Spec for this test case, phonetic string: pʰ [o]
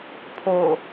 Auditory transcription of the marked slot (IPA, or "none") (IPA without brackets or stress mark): o